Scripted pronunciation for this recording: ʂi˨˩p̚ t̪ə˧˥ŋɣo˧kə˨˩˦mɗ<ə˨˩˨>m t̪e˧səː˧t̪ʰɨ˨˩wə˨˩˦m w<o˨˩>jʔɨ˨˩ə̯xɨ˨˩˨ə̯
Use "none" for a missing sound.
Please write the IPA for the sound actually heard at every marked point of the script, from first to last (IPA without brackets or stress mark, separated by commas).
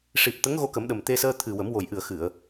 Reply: ə˨˩, o˨˩